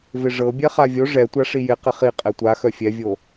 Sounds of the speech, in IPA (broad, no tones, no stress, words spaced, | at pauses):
vɪʐɤbʲɛ χavʲo ʐɛtʷa ʂijɪ qɪχi qʼɛtʷaxœ fʲɛvʲo